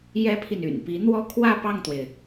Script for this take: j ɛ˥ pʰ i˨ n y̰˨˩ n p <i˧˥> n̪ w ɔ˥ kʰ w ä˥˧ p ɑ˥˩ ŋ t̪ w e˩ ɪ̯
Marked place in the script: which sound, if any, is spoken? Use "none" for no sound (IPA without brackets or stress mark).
i˧˥